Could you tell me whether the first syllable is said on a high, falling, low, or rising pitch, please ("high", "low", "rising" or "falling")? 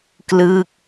falling